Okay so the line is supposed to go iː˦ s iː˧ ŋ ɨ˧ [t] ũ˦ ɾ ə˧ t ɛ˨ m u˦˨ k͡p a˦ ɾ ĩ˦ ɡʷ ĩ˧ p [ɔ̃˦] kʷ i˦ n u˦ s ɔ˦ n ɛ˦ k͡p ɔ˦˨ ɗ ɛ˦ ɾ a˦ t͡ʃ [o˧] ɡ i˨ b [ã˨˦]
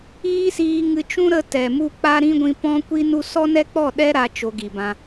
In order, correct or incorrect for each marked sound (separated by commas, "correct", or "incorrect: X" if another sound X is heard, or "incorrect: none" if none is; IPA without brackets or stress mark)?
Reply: incorrect: t͡ʃ, correct, correct, incorrect: ã˧